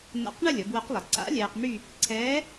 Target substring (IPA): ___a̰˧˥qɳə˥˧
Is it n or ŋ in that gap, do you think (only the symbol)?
n